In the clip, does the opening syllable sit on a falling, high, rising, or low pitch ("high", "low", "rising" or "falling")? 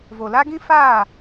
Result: low